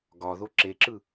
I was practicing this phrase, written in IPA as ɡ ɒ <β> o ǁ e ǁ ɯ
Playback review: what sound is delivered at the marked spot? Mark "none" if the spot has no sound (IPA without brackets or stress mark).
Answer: ð